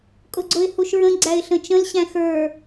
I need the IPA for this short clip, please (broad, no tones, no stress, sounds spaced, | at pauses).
kʼ ʊ ɡ͡ǀ ʊ ɪ̯ h u ʃ ɹ ə̃ ɡ͡ǀ æ ɪ̯ ɬ ə̃ t͡ʃ ə̃ l ɕ æ̃ x ə˞